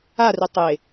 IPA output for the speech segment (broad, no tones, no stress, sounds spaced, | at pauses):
a r ʏ tˤ e